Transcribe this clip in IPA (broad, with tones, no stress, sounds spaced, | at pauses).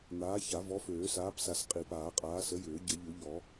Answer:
n̪ aː˨˥ ç a˨˩˦ v ɔ˨˥ f øː˨˩˦ s aː˨˥ p s a˨˩˦ s qʼ i˨˩˦ p aː˨˩˦ qʼ aː˨˥ s ə˨˥ j ʏː˨˩˦ ɟ ə˨˩˦ ʎ u˨˩˦ ʎ ɔ˨˩˦